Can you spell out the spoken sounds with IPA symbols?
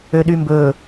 ø ɗ y m b ɵ

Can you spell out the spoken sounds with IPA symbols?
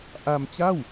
ʔ a˧ m t͡ɕ a˥˩ w

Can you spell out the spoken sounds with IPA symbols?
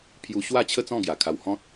pʰ j u˧ ɕ w a˥˧ t͡ɕʰ ə˥˧ t͡s ɔ̃˥˧ ɡ j a˨˩ kʰ a˧ w h ɔ̃˦ t̚

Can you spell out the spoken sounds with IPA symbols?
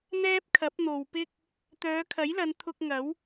n̪ ɛː˥ p̚ kʰ ɐ˨˥ p̚ n̪ o˨ w p ɪ˥ k̚ | t̪ œː˨˧ kʰ ɐ˨˥ j l ɐ˨˧ n t̪ʰ ʊ˧ k̚ ŋ ɐ˨˥ w

